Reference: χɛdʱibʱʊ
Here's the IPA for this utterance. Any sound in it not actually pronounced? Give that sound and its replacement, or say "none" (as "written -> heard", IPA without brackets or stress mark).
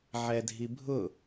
χ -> ʕ